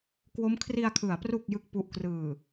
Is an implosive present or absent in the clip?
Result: absent